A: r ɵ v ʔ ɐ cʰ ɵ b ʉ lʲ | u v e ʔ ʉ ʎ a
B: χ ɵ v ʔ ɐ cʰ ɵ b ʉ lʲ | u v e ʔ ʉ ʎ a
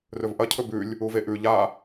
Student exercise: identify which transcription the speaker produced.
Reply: A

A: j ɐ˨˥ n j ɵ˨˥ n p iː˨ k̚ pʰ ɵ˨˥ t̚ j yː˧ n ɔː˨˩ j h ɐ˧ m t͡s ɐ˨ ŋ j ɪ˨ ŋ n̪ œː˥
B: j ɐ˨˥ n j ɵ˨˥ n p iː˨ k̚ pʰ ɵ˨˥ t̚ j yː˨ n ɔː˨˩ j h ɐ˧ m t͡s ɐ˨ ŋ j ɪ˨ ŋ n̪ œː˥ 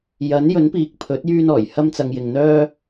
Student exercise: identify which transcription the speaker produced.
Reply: A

